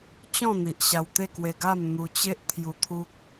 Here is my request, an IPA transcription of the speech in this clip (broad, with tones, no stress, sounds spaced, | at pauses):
t͡ɕ ɔ̃˥˧ n̪ i˨ ʔ ɕ a˧ w t̪ e˥˧ k w e˧ ɡ a˥˧ m n̪ u˧ t͡ɕ e˦ ʔ t̪ʰ j u˧ t̪ʰ u˦ k̚